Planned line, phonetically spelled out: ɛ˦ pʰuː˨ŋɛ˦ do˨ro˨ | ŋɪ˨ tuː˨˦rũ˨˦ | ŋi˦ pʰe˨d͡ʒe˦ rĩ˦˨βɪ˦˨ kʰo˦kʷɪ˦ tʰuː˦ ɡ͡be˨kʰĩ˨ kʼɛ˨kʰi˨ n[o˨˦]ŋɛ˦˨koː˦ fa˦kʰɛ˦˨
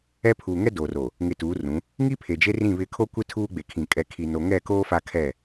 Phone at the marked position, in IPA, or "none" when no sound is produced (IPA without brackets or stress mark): o˨